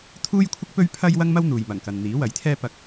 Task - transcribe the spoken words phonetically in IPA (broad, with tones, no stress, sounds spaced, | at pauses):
t̪ʰ uː˥ j kʷʰ ɪ˥ k̚ p ɵ˥ ɥ pʰ ɐ˥ j w ɐ˥ ŋ m ɐ˥ w n̪ uː˨ j m ɐ˨˩ ŋ k ɐ˨ n n̪ iː˨˥ w ɐ˨˥ j t̪ʰ ɛː˥ p ɐ˧ k̚